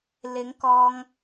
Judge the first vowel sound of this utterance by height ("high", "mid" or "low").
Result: high